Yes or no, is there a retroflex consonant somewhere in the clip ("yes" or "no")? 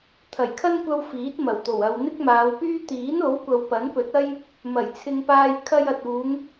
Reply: no